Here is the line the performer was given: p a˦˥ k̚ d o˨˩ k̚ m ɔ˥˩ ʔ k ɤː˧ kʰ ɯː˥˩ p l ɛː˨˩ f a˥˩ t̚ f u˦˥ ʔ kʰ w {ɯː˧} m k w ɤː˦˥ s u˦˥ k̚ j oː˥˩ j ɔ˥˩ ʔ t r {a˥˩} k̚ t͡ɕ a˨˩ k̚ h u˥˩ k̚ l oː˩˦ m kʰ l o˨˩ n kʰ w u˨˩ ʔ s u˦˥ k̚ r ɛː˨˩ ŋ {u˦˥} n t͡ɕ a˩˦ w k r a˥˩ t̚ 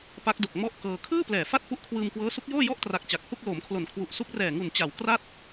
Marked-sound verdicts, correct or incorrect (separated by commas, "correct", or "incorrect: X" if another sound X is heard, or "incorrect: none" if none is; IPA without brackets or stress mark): correct, incorrect: a˨˩, incorrect: u˨˩